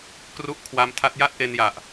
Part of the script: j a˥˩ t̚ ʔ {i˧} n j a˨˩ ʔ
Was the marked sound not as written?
yes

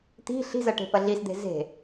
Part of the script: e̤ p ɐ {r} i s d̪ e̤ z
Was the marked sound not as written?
yes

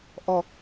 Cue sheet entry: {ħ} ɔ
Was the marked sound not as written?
yes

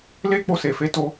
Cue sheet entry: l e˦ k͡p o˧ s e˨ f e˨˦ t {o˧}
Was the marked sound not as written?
no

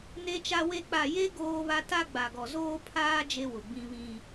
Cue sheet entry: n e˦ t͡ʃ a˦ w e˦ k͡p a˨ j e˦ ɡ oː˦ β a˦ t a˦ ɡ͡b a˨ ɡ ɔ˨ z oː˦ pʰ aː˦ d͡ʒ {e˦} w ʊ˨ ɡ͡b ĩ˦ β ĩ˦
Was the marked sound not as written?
no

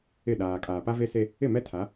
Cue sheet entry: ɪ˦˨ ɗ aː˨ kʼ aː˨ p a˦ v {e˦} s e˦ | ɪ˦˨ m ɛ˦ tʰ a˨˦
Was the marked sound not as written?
no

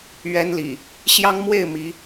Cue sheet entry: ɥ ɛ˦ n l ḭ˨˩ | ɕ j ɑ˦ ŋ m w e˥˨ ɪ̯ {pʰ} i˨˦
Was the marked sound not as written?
yes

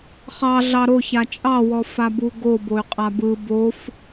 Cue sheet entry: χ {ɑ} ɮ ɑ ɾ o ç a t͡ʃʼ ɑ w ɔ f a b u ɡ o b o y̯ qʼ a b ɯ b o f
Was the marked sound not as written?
no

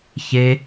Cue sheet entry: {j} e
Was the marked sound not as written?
yes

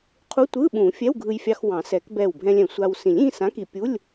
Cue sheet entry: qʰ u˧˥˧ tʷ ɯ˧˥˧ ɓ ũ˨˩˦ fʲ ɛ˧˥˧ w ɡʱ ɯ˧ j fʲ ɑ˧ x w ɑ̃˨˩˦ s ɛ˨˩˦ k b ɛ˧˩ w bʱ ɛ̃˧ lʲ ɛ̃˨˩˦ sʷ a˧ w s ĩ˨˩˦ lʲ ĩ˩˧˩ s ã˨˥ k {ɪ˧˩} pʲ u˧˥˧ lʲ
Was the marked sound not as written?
yes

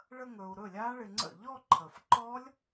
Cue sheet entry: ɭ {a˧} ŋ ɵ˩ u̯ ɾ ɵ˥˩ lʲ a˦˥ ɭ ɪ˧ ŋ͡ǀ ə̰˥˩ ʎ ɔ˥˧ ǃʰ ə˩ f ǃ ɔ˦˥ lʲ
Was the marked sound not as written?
yes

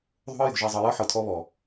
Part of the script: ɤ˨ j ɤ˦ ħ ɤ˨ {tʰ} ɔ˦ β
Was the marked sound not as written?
no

